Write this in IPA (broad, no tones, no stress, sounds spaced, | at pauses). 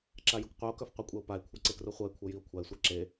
ǁ a j u k qʷ œ o̯ k œ f qʷ ɛ kʷʼ ɛ o̯ p a e̯ kʷʰ a ǀ e k r u χʷ ɤ e̯ kʷʰ ɤ j i o̯ kʷʰ a e̯ sʷ a ǁ e